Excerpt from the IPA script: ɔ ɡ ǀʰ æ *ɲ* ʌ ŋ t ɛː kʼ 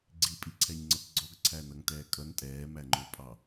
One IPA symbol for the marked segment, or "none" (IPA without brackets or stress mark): n